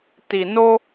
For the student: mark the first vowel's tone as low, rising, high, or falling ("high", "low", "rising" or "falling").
low